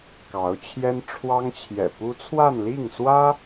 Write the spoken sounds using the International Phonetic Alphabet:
k ɑ˧˥ ʊ̯ t͡ɕʰ j ɛ˥ n ʈ͡ʂʰ w ɑ˥ ŋ t͡ɕʰ j ɛ̰˨˩ p u˥ t͡sʰ w a˥˧ n l i˥˩ ŋ s w ä˥

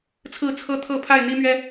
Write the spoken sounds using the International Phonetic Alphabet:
t͡sʰ ɹ̩˥˨ t͡sʰ ɤ˦ t̪ʰ ɤ˥˨ pʰ a˥˨ ɪ̯ n̪ i˦ m ɥ ɛ˦

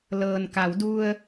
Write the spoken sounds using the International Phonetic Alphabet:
l ɤː˩ n k a˩˧ w d u˧ ə̯

